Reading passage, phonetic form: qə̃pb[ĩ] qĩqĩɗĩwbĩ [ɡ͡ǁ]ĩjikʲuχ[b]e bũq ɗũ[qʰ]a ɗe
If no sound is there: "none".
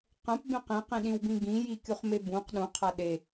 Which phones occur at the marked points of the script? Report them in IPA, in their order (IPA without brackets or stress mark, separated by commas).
ẽ, ɡ, m, qʰ